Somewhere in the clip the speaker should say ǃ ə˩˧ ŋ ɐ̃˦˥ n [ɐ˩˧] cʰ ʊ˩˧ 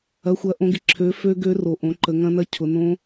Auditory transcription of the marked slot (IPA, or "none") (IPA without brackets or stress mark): ɐ˦˥